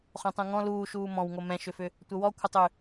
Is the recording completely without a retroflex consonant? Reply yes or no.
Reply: yes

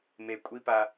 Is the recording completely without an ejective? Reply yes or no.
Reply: no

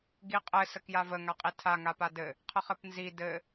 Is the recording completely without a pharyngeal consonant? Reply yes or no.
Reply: yes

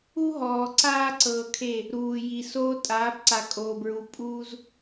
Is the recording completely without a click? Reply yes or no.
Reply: no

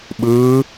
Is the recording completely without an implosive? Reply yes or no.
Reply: no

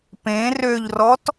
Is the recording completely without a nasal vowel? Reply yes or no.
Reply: no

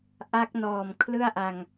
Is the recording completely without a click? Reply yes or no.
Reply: yes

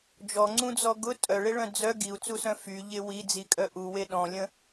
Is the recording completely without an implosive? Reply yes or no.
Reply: no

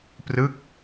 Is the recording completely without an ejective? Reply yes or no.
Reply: yes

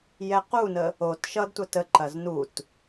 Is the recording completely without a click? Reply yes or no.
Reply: no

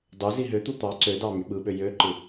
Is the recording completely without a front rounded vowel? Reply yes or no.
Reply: no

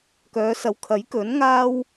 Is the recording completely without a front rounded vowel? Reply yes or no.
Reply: no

